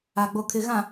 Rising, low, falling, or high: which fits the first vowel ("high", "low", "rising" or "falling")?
low